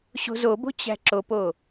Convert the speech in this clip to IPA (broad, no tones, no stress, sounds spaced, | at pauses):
ɕ o̤ z o b o̤ t͡ɕ æ̤ ǁ o p o